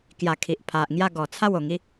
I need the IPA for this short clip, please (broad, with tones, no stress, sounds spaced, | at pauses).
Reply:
k j a˧ kʰ i˨ ʔ pʰ a˨ ʔ ŋ j a˥˧ ɡ ɔ˨˩ t͡sʰ a˥˧ w o˨˩ ŋ i˦